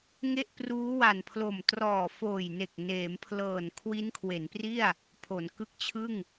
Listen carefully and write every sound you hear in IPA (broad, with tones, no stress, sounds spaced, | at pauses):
ŋ e˥˩ ʔ p r uː˦˥ w a˨˩ n pʰ l o˨˩ m t r ɔː˨˩ f oː˨˩ j n e˨˩ k̚ n eː˩˦ m pʰ l ɤː˨˩ n kʰ w i˦˥ n kʰ w e˩˦ n p r i˥˩ a̯ | pʰ o˩˦ n k ɯ˦˥ k̚ t͡ɕʰ ɯ˥˩ ŋ